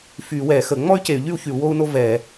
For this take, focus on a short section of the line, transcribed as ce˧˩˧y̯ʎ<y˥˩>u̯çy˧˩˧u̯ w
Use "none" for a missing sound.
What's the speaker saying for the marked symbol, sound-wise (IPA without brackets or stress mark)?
y˥˩